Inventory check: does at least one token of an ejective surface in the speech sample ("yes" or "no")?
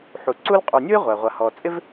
yes